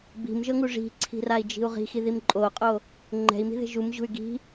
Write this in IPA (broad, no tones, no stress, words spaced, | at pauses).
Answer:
bi̤mʒɤŋu ʐi̤ǀʰi̤rai̯d͡ʒi̤u̯ ʁi̤xiðim ǃʼoqʼo | ŋ͡ǃɛ̤i̯mi̤ðe̤ ʒumʑṳy̯ ɡi̤